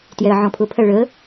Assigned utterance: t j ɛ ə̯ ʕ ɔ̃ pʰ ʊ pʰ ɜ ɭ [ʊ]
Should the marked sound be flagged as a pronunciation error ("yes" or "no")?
yes